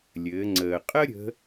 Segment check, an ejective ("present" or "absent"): present